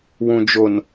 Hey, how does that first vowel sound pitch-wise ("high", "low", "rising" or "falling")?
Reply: low